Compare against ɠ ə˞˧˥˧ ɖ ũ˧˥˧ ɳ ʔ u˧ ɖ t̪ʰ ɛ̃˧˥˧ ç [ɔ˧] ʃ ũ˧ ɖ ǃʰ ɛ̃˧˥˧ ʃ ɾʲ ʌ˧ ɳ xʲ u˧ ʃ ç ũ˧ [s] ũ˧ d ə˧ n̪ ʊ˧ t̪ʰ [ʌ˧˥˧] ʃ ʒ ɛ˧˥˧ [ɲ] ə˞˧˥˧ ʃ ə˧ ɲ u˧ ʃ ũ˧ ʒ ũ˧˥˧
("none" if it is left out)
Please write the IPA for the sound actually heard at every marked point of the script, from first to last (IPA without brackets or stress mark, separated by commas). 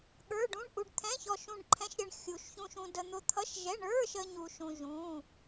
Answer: ɔ˧, ʃ, ʌ˧˥˧, ɳ